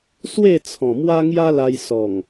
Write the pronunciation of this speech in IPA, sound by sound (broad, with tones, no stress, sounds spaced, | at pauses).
s w e˥˧ t͡sʰ ɔ̃˨˩ m w a˦ ŋ j a˦ l a˧ j s ɔ˨˩ ŋ